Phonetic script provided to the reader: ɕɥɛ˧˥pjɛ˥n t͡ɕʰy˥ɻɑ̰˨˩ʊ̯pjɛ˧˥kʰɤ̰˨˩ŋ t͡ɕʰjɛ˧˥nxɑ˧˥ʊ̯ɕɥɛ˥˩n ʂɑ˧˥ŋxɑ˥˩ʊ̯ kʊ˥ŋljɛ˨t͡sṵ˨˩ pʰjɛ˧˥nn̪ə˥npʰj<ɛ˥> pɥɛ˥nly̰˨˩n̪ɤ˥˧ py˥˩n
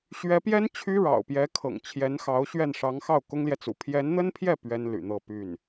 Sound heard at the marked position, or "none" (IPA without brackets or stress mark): ɛ˥˩